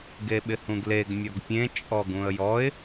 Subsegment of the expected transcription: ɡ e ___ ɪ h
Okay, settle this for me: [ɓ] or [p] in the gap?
ɓ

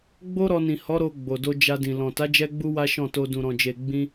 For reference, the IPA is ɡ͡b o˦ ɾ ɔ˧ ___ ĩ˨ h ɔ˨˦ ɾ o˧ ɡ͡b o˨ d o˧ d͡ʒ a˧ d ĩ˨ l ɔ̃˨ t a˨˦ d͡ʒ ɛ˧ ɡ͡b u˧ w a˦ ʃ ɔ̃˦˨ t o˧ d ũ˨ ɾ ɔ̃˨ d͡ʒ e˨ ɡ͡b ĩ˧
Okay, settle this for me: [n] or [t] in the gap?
n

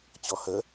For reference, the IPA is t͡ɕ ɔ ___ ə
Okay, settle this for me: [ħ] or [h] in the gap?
h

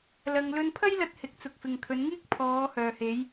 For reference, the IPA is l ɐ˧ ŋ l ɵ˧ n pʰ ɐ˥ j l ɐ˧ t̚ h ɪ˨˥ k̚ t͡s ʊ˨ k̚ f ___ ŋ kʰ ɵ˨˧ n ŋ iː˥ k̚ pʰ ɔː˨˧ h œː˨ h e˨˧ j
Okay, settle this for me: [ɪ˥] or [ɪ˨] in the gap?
ɪ˨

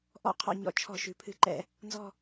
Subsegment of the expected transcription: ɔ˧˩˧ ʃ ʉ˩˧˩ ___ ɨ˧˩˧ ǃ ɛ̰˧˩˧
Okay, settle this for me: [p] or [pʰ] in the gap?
pʰ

